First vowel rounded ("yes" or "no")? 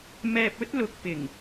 no